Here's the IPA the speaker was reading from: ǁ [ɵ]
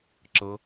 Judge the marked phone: incorrect: ɤ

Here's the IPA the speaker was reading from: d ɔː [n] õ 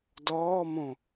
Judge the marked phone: incorrect: m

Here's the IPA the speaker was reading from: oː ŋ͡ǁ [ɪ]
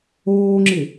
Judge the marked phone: correct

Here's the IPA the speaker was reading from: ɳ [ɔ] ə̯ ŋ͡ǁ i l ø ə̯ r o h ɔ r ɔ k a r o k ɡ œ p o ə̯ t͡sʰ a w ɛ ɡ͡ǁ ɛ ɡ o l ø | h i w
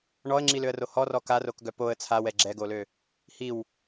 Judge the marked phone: correct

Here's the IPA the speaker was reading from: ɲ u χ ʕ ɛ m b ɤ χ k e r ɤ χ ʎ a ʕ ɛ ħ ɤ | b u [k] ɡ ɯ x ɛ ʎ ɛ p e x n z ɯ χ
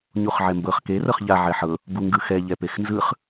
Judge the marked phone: incorrect: ŋ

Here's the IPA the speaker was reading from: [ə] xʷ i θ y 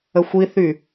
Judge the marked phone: correct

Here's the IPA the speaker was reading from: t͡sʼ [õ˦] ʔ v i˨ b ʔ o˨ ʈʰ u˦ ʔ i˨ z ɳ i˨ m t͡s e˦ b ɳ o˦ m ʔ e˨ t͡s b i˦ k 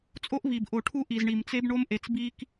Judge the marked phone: incorrect: o˦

